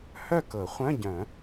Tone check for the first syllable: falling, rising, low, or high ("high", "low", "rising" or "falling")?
falling